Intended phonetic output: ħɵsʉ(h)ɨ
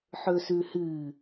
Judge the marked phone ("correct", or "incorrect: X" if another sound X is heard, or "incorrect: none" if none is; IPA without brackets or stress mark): correct